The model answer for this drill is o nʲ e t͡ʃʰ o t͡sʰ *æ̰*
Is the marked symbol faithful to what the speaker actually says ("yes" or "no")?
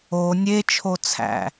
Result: yes